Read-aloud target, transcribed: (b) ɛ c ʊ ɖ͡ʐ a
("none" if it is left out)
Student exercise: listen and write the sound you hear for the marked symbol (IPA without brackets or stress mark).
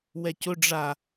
w